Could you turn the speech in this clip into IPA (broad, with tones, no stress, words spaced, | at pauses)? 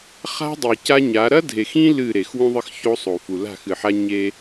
χa̤˦ dˤi˨ca˦ɲa˨˦ ɾɐ˦dʱe˨xĩ˦ lɨ˦˨ɾe˨x wũ˦ðˤɨ˦xço˦sˤo˨ fu˨la̤˦˨xɨ˨ħa˦ ɲe˦